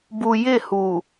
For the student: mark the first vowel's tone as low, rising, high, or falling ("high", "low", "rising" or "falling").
low